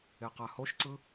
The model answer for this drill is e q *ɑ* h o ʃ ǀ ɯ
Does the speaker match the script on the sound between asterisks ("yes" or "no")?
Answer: no